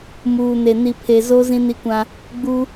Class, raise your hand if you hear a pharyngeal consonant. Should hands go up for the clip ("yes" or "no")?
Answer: no